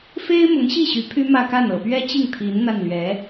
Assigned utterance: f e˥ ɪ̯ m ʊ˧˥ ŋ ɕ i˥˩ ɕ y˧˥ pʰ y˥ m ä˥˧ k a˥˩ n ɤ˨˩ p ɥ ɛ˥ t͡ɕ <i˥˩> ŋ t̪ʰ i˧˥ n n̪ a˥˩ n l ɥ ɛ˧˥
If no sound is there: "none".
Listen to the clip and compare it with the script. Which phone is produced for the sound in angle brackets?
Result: i˥˩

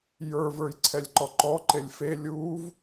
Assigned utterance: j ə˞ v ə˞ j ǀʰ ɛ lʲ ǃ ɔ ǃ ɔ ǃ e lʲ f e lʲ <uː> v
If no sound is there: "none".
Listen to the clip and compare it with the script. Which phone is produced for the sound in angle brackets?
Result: uː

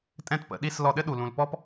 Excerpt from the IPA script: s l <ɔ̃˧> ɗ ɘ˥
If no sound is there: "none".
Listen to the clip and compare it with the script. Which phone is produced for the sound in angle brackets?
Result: ɔ˧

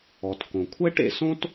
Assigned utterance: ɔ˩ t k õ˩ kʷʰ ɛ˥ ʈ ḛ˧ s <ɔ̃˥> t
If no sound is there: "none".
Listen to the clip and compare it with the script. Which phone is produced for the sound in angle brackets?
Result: õ˥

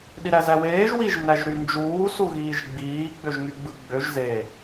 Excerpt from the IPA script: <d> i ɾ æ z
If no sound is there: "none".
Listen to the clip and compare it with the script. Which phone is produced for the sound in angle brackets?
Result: ɗ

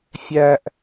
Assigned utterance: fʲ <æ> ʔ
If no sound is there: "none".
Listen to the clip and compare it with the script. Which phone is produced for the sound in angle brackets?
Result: æ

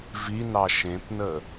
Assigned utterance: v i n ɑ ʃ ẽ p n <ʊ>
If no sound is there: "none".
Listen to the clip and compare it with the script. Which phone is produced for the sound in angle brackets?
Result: ə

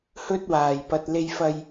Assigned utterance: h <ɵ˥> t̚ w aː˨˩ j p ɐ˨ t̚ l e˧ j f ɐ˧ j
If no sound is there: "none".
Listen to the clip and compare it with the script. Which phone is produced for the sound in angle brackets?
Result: ɵ˥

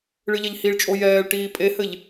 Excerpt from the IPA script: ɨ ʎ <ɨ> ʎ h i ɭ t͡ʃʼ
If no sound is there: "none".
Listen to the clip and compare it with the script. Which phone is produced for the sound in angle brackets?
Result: ɛ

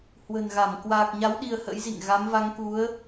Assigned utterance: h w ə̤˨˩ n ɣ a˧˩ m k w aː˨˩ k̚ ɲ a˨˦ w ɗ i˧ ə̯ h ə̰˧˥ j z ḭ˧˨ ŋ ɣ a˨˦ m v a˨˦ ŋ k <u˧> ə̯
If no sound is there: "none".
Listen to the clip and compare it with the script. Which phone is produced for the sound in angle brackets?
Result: u˨˦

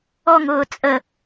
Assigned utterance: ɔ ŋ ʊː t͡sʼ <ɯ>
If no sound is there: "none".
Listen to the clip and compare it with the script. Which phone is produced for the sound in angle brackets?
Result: ə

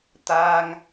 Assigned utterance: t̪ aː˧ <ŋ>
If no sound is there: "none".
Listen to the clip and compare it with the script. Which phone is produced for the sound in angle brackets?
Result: ŋ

